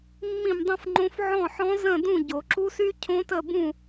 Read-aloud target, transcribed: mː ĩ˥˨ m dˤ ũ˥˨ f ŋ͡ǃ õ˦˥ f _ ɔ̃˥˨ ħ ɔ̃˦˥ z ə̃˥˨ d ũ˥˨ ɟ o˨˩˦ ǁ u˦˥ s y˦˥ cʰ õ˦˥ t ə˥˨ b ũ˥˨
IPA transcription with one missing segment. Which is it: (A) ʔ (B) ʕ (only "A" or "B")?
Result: B